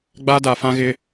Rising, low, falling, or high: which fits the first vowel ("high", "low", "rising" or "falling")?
high